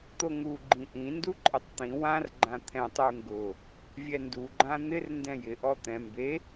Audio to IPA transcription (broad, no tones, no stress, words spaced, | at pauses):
t̪oŋu ɡ͡ǃĩʔĩ nduǃʼɪtˤt̪ĩ wãr ɡ͡ǃãt̪ʰɛ̃tˤ uŋɡʊ | vʲɛndu ɡ͡ǃãn̪ɪr ndɛ̃jɪ ʔɔt̪ɛ̃ mbe